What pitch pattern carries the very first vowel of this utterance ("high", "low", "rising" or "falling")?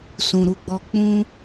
low